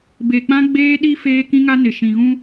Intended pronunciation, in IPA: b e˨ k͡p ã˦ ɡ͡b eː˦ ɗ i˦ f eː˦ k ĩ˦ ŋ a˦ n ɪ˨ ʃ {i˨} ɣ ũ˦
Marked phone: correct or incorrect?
incorrect: ĩ˨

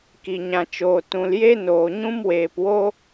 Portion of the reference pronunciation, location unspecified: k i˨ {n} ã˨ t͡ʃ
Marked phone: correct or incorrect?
incorrect: ɲ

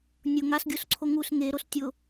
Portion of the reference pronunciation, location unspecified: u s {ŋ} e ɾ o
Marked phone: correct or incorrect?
correct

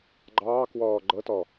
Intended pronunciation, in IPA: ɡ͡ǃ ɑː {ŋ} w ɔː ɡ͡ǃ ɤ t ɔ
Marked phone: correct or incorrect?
incorrect: k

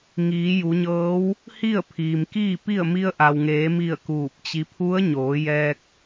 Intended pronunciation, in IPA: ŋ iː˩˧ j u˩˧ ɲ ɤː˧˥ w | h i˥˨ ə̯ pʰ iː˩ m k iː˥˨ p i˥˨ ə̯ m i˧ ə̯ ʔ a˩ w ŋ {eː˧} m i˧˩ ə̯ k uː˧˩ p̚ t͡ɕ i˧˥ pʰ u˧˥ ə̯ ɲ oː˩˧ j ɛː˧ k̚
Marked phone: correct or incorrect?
incorrect: eː˩˧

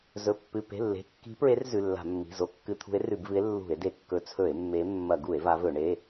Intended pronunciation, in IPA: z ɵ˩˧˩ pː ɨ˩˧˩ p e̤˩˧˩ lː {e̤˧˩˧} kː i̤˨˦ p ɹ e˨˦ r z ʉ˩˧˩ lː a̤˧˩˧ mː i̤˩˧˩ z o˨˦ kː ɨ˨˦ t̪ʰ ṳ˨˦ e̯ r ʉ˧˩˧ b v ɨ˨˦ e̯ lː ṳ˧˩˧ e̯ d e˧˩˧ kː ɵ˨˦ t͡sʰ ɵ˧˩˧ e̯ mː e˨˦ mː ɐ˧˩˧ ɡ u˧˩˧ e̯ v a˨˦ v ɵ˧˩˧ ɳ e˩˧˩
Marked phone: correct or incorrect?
incorrect: e̤˩˧˩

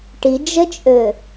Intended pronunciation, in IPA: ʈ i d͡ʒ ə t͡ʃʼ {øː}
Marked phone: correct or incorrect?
incorrect: ø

